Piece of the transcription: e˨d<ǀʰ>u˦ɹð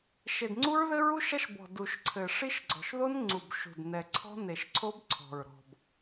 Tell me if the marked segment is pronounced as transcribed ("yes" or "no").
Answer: no